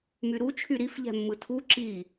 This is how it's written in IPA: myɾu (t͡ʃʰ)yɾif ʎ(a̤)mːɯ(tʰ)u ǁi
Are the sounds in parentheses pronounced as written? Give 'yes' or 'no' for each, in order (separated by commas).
yes, no, yes